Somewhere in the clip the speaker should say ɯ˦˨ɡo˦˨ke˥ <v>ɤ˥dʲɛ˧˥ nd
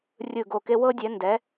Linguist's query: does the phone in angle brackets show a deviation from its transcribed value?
yes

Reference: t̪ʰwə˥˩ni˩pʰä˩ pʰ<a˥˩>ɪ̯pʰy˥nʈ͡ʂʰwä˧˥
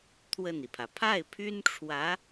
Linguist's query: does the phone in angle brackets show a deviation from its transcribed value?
no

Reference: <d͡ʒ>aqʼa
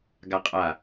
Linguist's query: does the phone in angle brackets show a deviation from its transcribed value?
yes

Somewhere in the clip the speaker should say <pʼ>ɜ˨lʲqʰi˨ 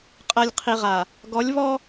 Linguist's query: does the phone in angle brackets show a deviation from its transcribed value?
yes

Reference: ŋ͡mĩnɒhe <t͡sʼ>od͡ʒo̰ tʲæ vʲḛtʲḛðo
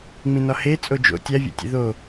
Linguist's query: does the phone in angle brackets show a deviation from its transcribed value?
no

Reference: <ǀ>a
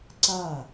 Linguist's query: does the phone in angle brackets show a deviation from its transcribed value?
no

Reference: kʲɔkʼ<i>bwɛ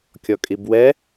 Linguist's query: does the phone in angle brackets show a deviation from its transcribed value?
no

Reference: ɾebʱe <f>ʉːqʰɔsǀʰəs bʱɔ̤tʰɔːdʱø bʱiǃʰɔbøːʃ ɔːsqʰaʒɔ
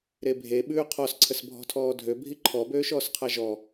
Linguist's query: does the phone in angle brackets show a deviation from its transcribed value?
yes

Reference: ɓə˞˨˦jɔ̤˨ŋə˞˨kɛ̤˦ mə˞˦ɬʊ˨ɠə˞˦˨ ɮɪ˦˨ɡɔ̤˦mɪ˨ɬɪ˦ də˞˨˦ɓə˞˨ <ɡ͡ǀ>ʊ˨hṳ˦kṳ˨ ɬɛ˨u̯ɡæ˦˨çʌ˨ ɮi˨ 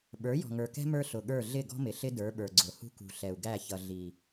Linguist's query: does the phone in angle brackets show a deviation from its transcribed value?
no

